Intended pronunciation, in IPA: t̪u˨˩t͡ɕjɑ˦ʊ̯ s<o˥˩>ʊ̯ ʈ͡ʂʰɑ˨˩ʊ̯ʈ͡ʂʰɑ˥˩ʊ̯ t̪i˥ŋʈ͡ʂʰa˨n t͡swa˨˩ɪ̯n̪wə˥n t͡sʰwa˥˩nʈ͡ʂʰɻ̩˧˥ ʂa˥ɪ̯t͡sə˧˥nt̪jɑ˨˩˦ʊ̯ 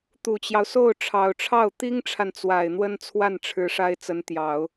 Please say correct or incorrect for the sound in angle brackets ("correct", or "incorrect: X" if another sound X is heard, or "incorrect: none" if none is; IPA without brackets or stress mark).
correct